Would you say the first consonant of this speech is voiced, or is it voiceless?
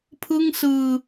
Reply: voiceless